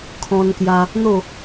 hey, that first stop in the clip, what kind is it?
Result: aspirated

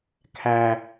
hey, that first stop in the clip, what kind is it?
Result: aspirated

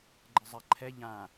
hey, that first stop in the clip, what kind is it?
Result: click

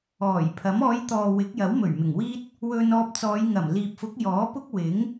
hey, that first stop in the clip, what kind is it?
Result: aspirated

